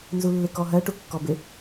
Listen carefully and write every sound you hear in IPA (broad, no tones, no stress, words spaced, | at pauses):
nzulːɪkɔɦɜ ʈukːɔbɪ